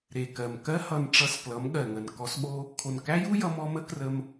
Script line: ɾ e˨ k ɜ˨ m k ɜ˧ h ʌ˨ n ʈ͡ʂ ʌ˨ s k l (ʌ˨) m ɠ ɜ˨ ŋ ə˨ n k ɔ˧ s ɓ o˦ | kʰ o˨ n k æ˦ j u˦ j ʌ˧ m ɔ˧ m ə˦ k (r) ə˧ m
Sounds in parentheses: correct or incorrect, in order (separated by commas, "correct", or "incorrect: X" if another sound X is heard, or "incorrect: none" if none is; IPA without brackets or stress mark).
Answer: incorrect: ʌ˨˦, correct